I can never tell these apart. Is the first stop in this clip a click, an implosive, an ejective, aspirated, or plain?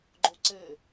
click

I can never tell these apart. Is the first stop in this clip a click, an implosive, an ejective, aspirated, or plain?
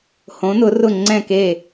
click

